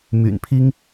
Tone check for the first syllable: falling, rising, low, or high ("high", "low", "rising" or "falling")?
low